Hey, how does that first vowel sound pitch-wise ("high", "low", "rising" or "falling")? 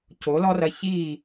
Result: rising